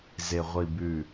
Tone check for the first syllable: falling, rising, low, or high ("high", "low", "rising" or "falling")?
low